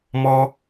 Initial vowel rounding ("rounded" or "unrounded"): rounded